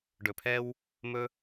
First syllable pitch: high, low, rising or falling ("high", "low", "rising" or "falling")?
low